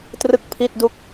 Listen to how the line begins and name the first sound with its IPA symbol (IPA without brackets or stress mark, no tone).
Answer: t